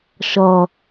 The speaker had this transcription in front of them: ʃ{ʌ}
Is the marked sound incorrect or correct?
correct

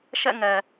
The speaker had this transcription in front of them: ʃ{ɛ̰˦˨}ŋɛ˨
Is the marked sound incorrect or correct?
correct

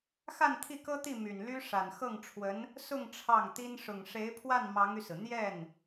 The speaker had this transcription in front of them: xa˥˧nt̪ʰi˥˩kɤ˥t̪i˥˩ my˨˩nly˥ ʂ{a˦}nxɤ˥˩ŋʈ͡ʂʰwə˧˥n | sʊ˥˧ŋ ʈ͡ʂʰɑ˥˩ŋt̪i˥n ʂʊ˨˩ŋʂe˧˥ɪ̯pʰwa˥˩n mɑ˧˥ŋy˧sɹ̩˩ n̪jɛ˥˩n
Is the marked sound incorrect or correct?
incorrect: a˨˩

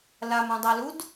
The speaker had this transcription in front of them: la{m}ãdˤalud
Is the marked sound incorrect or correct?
correct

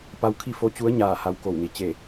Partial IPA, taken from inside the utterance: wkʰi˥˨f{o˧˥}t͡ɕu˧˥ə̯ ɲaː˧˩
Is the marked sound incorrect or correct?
correct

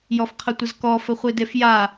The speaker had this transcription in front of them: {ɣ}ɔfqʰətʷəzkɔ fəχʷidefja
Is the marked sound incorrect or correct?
incorrect: j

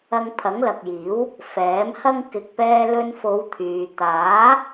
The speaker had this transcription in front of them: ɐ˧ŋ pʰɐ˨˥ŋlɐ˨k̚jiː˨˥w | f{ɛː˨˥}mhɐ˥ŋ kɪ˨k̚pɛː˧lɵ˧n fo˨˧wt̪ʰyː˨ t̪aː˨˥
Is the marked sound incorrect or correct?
correct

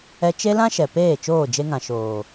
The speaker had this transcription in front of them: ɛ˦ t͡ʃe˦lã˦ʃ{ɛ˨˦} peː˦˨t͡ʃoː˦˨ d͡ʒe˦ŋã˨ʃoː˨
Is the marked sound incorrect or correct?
incorrect: ɛ˨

